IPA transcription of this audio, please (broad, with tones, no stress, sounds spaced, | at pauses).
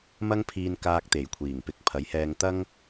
m ɐ˥ ŋ pʰ iː˧ n k aː˧ k̚ t̪ e˨˩ j kʷʰ iː˨˩ ŋ p ɪ˨˥ k̚ pʰ ɐ˨˥ j h ɛː˧ ŋ t̪ ɐ˥ ŋ